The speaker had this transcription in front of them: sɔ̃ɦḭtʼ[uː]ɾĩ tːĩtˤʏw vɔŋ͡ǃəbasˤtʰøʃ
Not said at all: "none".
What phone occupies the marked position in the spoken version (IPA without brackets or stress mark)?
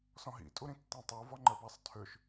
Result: u